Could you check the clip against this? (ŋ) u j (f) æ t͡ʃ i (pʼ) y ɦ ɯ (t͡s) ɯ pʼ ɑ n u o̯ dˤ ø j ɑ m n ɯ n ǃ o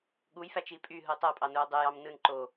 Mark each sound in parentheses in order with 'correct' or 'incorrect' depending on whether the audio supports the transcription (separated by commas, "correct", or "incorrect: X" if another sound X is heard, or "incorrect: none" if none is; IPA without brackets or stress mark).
incorrect: ɠ, correct, correct, incorrect: tˤ